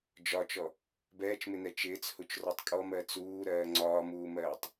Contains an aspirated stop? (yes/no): no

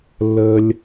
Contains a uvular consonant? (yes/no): no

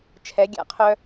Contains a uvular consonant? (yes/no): yes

